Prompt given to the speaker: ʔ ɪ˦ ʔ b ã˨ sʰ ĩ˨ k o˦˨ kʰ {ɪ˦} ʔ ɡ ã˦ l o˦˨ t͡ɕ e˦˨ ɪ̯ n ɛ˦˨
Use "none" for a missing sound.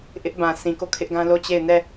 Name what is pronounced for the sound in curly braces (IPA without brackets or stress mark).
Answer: ɪ˦